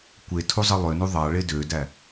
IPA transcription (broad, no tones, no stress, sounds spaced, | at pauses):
kʷ e tʰ u zˤ ɯ lˠ ø n u ðˤ ɑ ɭ e d ø d æ